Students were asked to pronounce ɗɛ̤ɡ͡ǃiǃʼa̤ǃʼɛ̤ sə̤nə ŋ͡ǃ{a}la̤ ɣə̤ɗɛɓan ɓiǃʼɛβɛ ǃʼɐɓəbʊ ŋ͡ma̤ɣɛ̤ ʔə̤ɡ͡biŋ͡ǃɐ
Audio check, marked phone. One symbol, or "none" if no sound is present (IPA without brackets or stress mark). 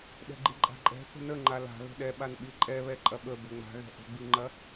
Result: a